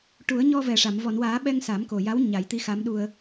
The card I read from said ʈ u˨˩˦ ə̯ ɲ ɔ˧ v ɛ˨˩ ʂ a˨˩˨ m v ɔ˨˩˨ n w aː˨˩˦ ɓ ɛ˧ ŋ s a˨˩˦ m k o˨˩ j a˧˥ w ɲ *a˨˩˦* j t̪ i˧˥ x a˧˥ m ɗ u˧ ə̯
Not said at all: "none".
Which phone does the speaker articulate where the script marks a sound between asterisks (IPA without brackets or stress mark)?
a˨˩˦